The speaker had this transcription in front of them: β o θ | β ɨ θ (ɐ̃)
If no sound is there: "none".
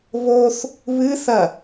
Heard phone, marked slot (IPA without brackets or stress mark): ɐ